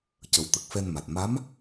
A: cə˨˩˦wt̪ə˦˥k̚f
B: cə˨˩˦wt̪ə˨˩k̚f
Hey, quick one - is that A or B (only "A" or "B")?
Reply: B